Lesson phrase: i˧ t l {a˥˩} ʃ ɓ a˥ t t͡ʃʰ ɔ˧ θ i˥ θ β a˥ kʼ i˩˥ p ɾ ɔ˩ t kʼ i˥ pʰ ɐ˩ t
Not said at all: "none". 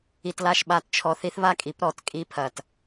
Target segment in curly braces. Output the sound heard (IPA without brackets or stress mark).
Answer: a˥˩